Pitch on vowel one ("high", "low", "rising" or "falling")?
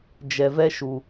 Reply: low